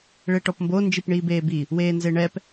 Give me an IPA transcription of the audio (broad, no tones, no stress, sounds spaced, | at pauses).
ɭ e ʈ ɔ p m b o n d͡ʒ i p ɳ iː b eː b i | w eː n z e ɳ ɛ p